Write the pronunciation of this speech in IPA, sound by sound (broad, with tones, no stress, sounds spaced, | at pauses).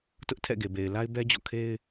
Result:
t ʊ˦ ʔ tʰ ɛ̰˦˨ ɡ e˨ b e˨ ɪ̯ l a˦ ɪ̯ b ɛ˦ d͡ʑ ɔ̰˦˨ kʰ e˦ ɪ̯